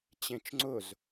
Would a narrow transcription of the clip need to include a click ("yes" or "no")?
yes